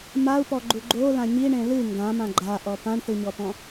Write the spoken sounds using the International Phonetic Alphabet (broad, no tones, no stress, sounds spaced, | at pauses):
m a u̯ p ɔ ɡ͡ǃ u ɡ͡ǃ o l ã ɲ i ɳ ẽ l ɨ ŋ ɡ ã m ã ɡ͡ǃ a ʔ ɔ p ã ɳ θ ɨ ɲ ɔ p ɔ̃